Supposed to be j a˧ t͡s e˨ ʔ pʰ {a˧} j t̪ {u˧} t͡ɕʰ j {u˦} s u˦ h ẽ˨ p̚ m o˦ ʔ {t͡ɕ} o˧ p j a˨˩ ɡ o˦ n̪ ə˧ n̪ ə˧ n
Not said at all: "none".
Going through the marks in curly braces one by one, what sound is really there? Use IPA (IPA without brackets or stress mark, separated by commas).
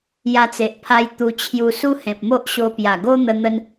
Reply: a˧, u˧, u˧, ɕ